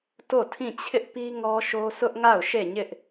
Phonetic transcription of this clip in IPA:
t o˦˨ tʰ ĩ˦˨ t͡ɕʰ ɪ˦ ʔ p i˦ ŋ ɔ˦ ʃ o˦ s ʊ˦ ʔ ŋ a˦˨ ʊ̯ ʃ e˦˨ ɲ ɪ˦ ʔ

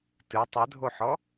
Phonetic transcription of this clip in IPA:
t ɨ tˤ ɘ dʱ o ħ ɔ

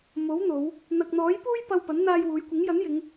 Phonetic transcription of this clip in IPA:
m o˨˥ w n̪ o˨˧ w | n̪ ɐ˨ k̚ n̪ ɔː˨˥ j p uː˥ j p ɐ˧ w p ɐ˨˥ n n̪ aː˧ j w uː˨˧ j kʷ ɪ˨˥ ŋ j ɐ˨˥ n j ɪ˨˧ ŋ

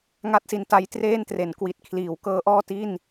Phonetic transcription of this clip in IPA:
ŋ a˥˩ t̚ s i˧ n t a˦˥ j t r eː˥˩ n t r e˩˦ n k w i˨˩ t̚ kʰ l iː˩˦ w k ɤː˦˥ ʔ ɔː˥˩ t i˥˩ n

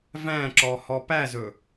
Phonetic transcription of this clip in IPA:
v æ̃ ǁ ɔ h ɔ p æ z ɵ

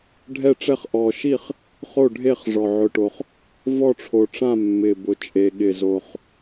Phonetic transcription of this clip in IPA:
ɖʱ ɛ˥˩ ʈ͡ʂ ɛ˥˩ χ ʔ ɔ˨˩ ʃ i˥˩ χ | χ o˥˩ ɖʱ e˥˩ χ ʐ ɔ˨˩ ʕ ʊ˨˩ ʈ o˨˩ χ | v ɔ˥˩ ʈ͡ʂʰ o˨˩ ʈ͡ʂ ã˥˩ mː ɪ˨˩ b ʊ˨˩ t͡ʃʼ e˨˩ ɠ ɪ˨˩ z o˨˩ χ

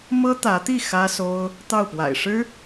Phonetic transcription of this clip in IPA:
m ɤ˥ t̪ ä˧˥ t̪ i˥˩ x ä˥ s o˥ ʊ̯ | t̪ ɑ˥˩ ʊ̯ p w a̰˨˩ ɪ̯ ʂ ɻ̩˥

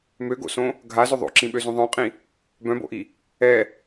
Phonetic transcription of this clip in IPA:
m ø ɡ o̰ s õ | ɡʱ a z ʏ ðˤ o̰ ǁ ĩ ɓ ø z ũ ðˤ œ̃ qʼ ĩ | b œ̃ b o̰ ʔ i | ɛ

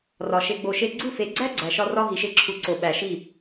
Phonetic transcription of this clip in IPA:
r ɒ˨ ʃ e˧ ɡ͡b o˧ ʃ e˦ ɡ͡ǀ u˦˨ f e˨˦ ɡ͡ǀ æ˦ ɡ͡ǀ æ˨ ʃ ɒ˧ r ɒ˧ ɦ i˨ ʃ e˧ ǁʰ u˨ ǀ o˨ ɓ æ˨ ʃ i˦˨

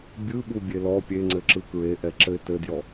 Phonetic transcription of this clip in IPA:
bʲ ɯ ɓ u bʲ e l ɔ pʲ e ŋ͡ǀ ɘ ǁ ɯ k ɹ e ʔ ɛ ǁ ɘ ɪ̯ t ɘ d j ɔ

